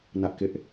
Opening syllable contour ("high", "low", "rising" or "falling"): high